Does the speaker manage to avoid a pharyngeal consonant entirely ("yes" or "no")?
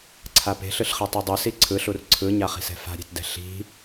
yes